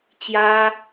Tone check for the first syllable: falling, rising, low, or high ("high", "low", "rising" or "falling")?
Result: high